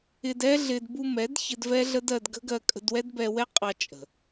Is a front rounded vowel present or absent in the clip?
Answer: absent